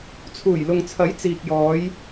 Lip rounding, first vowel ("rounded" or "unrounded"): rounded